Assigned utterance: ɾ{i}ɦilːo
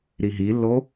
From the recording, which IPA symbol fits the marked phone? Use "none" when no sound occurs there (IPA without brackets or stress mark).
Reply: i